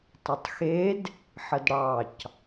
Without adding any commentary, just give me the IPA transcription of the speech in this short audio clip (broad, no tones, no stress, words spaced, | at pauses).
tˤətˤxed | ħədɽɑc